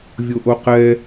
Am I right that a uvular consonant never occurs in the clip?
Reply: no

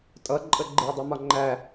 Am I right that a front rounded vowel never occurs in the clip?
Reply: yes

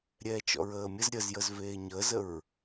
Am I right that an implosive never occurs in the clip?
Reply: yes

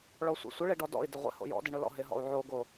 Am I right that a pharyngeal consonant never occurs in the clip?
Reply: no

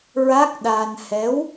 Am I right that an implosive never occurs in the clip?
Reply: no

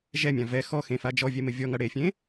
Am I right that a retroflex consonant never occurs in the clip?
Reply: no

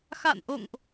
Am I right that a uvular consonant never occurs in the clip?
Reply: yes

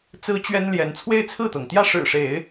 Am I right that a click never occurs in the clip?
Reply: yes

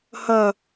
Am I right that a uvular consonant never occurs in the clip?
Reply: yes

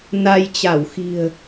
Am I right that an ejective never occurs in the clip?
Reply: yes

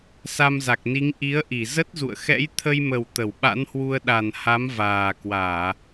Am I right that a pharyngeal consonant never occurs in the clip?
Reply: yes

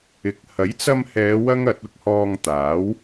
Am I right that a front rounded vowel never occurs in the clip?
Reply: yes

